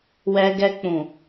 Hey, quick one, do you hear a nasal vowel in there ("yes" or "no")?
yes